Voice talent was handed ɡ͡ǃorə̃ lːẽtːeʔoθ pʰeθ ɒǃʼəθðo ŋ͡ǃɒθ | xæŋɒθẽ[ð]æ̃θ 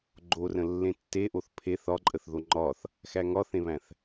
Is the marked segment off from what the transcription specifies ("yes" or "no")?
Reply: yes